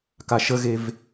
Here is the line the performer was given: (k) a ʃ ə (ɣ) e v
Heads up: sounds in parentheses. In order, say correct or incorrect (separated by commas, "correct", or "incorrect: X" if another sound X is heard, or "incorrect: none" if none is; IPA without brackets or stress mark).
correct, correct